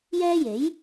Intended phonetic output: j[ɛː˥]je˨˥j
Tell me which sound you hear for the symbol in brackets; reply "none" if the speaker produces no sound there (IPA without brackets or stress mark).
ɛː˥